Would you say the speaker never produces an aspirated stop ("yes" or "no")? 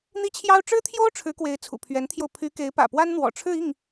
no